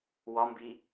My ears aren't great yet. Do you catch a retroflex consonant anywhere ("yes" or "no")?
no